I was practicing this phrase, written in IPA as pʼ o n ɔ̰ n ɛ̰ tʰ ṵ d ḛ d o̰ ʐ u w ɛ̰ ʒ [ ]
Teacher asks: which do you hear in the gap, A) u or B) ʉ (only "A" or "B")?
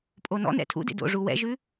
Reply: B